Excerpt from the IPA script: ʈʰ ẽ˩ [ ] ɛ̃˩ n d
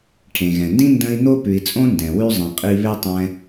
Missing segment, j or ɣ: ɣ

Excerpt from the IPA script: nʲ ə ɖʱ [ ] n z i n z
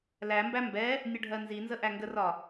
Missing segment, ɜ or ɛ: ɜ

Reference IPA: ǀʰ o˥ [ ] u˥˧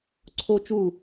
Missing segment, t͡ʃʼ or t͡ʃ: t͡ʃ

